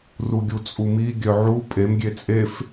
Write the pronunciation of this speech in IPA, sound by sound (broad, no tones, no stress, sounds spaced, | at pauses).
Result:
r u ɡʲ u t͡sʼ u m i ɡʲ œ ʕ u pʼ e m ɡʲ e t͡sʼ e f